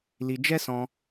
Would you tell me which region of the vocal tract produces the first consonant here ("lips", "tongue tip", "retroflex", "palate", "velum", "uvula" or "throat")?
tongue tip